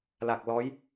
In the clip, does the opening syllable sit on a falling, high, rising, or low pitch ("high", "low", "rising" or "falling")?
low